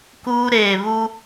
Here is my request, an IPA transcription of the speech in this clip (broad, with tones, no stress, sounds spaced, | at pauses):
k uː˦ ɾ eː˨ β u˦